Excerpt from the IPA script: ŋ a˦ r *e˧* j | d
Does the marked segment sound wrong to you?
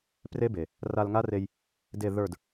no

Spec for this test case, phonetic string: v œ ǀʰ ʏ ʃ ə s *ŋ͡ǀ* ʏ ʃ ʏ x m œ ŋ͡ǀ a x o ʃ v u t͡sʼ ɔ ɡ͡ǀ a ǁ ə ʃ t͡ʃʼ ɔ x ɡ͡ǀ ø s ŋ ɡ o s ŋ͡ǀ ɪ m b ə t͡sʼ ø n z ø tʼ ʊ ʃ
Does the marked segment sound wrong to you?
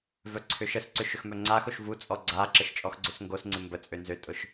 yes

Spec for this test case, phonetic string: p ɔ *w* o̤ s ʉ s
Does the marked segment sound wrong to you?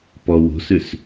no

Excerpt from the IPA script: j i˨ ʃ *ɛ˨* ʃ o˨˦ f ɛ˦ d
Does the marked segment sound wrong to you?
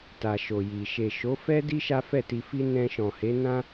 yes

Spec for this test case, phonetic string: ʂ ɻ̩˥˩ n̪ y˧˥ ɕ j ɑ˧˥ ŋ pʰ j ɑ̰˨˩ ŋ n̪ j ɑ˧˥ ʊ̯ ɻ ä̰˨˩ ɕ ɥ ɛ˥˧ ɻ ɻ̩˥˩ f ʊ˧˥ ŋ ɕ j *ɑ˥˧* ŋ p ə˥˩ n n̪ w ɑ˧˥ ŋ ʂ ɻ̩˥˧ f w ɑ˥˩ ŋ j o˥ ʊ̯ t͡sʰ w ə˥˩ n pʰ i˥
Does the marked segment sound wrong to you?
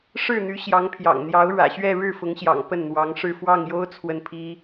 yes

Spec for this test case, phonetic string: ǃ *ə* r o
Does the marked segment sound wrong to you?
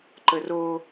no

